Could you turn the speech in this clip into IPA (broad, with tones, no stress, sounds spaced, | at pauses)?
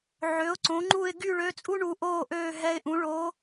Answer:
ʕ ø˩˥ ʊ̯ ǀ õ˩˥ ŋ͡ǃ u˥˨ ɪ̯ ɡ y˥˨ ɭ ø˧˥ t͡sʼ u˥ ɳ u˧˥ ʔ oː˥˨ ʔ øː˥˨ ɦ ɛ˧˥ ɪ̯ ʔ ũ˩˥ ɭ o˧˥